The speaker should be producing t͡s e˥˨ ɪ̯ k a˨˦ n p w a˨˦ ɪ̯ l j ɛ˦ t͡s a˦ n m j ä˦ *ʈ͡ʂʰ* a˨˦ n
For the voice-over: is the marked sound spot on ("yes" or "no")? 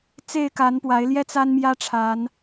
yes